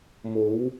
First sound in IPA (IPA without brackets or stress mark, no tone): m